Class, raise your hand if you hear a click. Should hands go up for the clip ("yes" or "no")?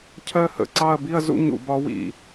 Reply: yes